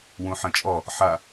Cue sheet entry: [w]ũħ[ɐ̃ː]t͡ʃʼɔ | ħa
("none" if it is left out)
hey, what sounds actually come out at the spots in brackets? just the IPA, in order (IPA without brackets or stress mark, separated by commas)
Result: w, ɐ̃